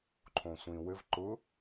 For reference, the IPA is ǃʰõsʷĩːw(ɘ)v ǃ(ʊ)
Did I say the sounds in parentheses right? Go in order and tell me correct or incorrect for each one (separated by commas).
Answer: correct, correct